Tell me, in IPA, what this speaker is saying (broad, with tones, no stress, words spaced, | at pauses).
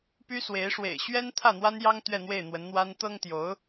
py˥swe˧˥ɪ̯ ʂwḛ˨˩ɪ̯ɕɥɛ˥n t̪ʰä˥˩n̪wa˥njɑ˥ŋ t̪ɥɛ˥˧n̪we˥˩ɪ̯n̪wə˧˥nn̪wa˥n t̪ɤ˥ŋt̪jo˧˥ʊ̯